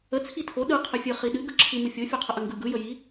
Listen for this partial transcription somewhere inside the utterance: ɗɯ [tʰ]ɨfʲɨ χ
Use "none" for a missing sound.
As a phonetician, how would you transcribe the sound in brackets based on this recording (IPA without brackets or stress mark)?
qʰ